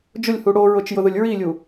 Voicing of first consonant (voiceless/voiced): voiced